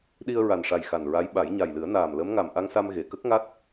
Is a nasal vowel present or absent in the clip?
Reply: absent